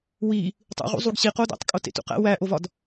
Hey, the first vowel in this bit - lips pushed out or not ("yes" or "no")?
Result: no